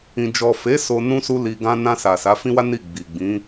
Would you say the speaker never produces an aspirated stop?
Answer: yes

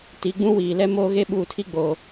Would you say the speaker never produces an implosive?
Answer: no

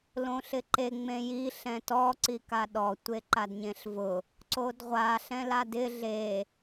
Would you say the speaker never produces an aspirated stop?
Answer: yes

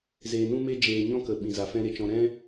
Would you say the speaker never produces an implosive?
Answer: no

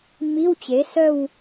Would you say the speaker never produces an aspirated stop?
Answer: yes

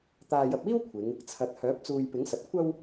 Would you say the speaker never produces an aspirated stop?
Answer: no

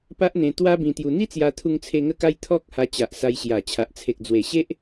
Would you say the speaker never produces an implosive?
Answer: yes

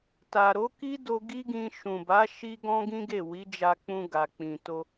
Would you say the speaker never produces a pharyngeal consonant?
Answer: yes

